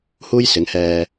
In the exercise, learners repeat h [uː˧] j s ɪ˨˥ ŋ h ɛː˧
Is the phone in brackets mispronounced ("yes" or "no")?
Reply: yes